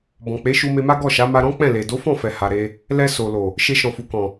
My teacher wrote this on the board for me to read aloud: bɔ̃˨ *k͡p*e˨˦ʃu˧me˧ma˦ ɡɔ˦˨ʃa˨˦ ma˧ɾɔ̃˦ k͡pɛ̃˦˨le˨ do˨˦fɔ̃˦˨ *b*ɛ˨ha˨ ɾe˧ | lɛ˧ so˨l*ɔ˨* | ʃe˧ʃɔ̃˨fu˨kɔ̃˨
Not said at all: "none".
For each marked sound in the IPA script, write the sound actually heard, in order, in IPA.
k͡p, f, o˨

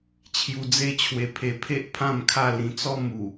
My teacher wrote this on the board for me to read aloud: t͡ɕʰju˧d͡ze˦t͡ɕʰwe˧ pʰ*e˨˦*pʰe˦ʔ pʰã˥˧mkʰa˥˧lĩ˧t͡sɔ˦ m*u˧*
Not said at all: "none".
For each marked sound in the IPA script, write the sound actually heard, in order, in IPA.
e˧, u˨˩

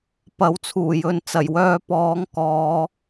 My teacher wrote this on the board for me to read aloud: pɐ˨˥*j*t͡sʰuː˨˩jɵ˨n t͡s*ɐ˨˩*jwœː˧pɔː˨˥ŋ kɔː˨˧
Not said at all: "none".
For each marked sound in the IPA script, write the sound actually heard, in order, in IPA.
w, ɐ˨˩

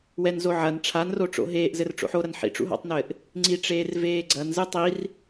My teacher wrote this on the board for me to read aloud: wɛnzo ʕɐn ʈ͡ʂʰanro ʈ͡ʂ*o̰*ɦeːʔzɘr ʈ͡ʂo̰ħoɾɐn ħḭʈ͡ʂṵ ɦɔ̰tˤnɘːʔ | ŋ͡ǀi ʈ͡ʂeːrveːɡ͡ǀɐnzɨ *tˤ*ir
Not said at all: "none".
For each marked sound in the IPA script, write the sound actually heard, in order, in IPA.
o̰, tˤ

